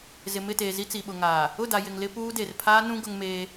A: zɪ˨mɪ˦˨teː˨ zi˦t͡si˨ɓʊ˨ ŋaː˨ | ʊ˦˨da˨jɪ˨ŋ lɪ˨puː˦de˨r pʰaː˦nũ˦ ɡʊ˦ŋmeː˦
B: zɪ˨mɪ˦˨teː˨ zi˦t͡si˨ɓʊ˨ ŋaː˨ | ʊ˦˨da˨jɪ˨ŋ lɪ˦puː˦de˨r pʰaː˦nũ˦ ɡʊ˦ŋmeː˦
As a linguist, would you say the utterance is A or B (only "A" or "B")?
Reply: B